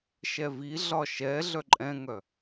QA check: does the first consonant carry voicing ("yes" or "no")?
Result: no